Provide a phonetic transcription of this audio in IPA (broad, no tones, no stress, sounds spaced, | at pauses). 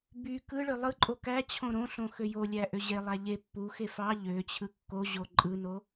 b y k ɯ ɭ ø lˠ ɯ ǃʼ o k æ t͡ɕʰ õ ɾ õ ɬ õ x ø j o lʲ æ ʔ ø ʑ e lˠ æ ʎ e pː u x e f ɑ ʎ ø t͡ɕʰ ɯ kː o ʑ o ǃʼ ɯ n o